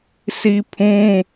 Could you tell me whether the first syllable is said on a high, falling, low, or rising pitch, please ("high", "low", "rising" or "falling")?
high